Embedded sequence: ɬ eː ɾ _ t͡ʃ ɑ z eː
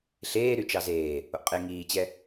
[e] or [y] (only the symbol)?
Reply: y